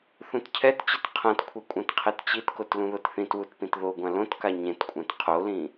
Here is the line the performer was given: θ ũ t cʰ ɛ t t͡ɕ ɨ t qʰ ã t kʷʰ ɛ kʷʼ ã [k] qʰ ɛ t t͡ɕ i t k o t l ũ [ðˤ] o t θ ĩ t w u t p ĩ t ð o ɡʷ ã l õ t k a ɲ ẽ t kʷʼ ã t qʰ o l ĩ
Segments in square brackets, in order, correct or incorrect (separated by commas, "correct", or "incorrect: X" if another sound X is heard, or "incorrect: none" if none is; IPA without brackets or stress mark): incorrect: t, incorrect: ð